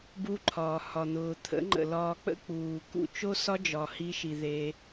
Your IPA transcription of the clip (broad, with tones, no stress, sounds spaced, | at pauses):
b u˧ ǃʰ ɒː˨ h ɒ˨ n̪ ʊː˨ t̪ʰ ə̰˨˦ ŋ͡ǃ ə̰˨ l ɒː˧ k͡p ə̰˦ k͡p uː˨ k ṵ˦ t͡ʃ o˦ s ɒ˦ d͡ʒ ɒ˨ h i˧ ʃ i˨ ð e˧